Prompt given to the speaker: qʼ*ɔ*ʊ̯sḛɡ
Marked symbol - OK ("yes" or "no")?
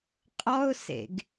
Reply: yes